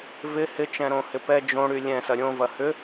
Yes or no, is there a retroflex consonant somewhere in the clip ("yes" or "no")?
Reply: yes